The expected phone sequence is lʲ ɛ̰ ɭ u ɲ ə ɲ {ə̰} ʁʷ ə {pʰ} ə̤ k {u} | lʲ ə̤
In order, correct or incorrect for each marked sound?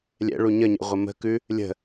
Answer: correct, incorrect: m, incorrect: ʉ

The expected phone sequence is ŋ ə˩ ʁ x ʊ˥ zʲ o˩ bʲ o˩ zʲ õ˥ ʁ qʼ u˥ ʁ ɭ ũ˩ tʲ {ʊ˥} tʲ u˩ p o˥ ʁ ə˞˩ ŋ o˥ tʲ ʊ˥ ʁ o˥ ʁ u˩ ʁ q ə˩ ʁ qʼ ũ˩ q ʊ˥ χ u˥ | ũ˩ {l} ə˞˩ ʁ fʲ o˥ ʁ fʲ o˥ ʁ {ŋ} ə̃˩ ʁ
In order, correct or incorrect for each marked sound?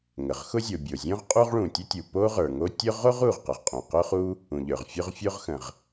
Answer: incorrect: ə˥, incorrect: ʎ, incorrect: x

